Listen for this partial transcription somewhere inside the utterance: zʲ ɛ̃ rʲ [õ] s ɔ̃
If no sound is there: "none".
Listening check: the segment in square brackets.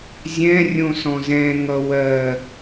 õ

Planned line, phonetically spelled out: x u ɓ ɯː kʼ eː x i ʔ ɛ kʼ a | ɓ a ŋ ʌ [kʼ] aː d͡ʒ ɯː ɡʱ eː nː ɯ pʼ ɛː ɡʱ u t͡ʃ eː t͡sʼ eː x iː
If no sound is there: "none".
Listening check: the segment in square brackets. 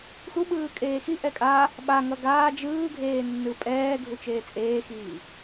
ɡ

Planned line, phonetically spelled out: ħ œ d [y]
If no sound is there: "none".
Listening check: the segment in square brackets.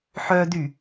y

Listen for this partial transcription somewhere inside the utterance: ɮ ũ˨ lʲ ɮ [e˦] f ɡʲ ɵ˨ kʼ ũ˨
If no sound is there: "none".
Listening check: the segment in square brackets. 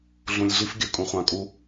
i˦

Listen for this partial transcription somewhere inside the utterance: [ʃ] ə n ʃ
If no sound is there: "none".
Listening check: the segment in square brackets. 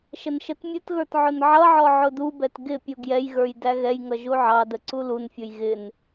ʃ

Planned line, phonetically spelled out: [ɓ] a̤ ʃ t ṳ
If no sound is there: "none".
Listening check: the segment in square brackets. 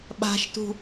ɓ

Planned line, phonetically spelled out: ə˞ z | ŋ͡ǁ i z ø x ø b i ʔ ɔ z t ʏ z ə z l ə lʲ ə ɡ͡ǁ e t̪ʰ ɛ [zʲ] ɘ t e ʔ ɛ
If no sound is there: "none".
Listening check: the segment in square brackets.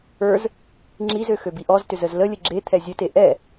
zʲ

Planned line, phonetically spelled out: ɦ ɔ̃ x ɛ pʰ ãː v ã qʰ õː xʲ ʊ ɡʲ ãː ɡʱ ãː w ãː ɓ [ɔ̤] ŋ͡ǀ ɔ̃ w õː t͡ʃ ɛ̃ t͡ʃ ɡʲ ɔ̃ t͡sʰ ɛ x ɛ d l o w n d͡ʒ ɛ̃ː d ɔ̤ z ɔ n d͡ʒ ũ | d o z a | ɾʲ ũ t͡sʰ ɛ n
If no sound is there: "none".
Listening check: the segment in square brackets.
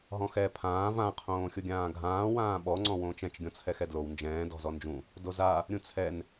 ɔ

